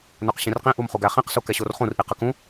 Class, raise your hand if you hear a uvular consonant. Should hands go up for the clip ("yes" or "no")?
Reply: yes